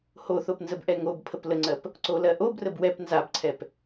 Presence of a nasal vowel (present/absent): absent